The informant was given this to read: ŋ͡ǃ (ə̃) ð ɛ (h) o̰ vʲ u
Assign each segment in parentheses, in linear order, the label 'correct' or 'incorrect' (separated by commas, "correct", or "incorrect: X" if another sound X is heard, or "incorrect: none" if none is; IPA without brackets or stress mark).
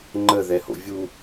incorrect: ə, correct